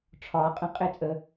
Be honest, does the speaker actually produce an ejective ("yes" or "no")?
yes